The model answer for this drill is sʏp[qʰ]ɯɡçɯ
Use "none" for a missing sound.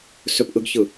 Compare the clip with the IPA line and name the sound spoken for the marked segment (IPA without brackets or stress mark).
ʔ